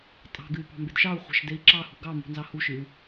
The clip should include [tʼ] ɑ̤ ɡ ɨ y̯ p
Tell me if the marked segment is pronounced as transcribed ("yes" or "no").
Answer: yes